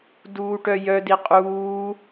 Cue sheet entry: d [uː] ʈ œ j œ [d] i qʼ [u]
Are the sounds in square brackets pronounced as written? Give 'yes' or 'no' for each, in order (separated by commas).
yes, yes, no